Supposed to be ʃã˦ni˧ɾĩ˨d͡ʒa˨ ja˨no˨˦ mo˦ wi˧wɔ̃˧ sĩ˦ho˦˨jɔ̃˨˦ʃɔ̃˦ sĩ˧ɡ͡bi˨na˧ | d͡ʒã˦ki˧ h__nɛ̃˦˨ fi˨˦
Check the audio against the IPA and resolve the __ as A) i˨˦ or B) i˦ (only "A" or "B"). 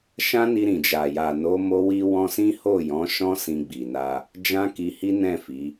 B